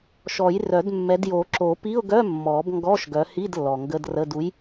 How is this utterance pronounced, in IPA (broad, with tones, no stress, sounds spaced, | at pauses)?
ʃ ɔ˨˩˦ j r œ˨˩˦ d mː ɛ˨˦ d j o˨˩˦ ǁ o˨˩˦ p i˧˥˧ ʊ̯ ɡ œ˧˥˧ mː ɔ˨˩˦ b ŋ ɡ ɔ˧˥˧ ʃ ɡ œ˨˦ h i˧˥˧ d lː ɔ˨ ŋ ɡ ə˧˥˧ d r ə˧˥˧ d u˨˦ j